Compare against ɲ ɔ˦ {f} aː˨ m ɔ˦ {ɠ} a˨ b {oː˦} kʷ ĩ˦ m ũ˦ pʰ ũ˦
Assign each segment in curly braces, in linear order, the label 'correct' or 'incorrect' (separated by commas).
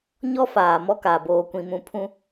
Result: correct, incorrect, correct